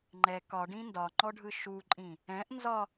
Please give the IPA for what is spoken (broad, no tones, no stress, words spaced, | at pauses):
ŋ͡ǃɛ kɒɖĩ ndɒŋ͡ǃɔɖʱɯ ʃuǃʼĩ | ɛ̃ʔ nzɒ